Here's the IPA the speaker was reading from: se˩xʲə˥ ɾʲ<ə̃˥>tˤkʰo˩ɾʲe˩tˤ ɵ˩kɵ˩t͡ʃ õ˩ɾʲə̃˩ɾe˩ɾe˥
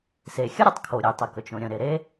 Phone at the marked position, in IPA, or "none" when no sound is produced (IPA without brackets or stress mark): ə˥